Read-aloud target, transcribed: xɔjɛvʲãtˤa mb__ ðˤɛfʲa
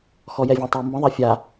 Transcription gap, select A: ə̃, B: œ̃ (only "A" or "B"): A